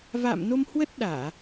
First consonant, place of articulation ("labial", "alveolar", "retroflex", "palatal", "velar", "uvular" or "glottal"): labial